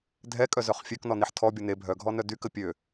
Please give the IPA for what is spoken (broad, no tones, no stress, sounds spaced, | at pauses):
dʱ ɛ kʼ œ z œ χ fʲ ø k n ɔ n i ħ tʰ ɔ bʲ o n e bʱ œ ɡʱ ɔ n œ d y k ə pʲ ø